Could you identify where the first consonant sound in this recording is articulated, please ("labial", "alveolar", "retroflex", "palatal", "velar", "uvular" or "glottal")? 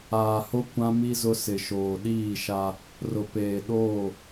glottal